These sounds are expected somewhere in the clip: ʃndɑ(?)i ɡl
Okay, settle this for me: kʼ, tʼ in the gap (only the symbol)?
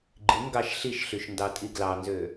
tʼ